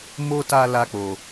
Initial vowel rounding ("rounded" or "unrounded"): rounded